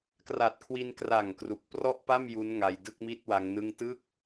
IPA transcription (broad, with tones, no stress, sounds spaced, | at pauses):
k r a˨˩ t̚ kʰ w i˧ n k r a˨˩ ŋ k r u˨˩ k̚ p r ɔ˥˩ ʔ p a˥˩ m j u˦˥ n ŋ a˧ j d ɯ˥˩ k̚ m i˥˩ t̚ w a˦˥ ŋ n ɯ˥˩ ŋ t ɯ˥˩ k̚